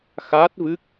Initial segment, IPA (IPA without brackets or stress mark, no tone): x